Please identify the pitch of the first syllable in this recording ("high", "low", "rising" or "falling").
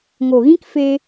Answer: low